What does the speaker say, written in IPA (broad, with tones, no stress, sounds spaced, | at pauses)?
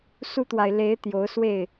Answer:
s u˦ t̪ w a˨ ɪ̯ l e˨˦ ɪ̯ t̪ j o˨˦ ʊ̯ s w e˥˨ ɪ̯